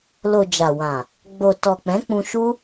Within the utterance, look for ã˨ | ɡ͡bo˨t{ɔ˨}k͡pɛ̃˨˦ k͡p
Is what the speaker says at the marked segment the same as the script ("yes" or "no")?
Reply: yes